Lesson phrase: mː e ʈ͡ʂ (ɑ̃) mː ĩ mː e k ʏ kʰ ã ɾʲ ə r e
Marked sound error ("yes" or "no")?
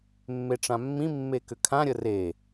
yes